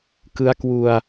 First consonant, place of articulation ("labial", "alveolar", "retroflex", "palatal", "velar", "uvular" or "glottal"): velar